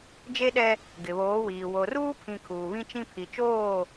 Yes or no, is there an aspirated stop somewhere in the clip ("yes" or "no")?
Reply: yes